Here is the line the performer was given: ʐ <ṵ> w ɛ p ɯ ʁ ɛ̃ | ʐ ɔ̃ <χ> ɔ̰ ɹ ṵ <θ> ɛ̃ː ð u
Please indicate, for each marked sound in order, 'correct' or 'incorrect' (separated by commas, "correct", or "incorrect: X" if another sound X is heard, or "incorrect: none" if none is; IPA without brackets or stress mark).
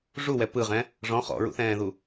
incorrect: u, correct, correct